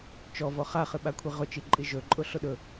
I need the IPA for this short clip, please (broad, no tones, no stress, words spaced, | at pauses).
t͡ʃɔvɔ χaχɨɓakʷʰi ʁʊt͡ʃiǃʼi ʒɵǃʼʊ ɬʊɗɵ